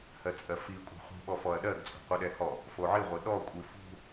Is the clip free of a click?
yes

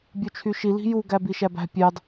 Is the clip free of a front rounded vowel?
no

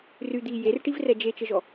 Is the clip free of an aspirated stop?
yes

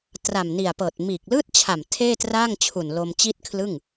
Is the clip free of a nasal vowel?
yes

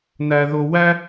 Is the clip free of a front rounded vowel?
yes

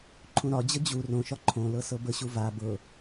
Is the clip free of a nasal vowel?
no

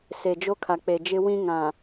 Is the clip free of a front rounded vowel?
yes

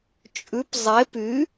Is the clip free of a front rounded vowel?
no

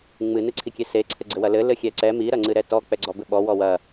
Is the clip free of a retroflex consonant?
yes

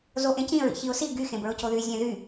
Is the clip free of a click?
yes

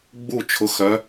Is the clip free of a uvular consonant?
yes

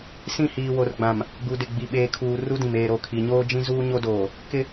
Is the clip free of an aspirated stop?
no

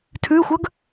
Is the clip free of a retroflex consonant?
yes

